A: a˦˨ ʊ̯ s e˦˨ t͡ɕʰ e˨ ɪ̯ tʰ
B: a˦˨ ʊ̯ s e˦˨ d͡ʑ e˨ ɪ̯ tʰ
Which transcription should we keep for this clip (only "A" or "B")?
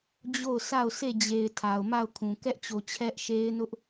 B